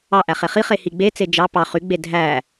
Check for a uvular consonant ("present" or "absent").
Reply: present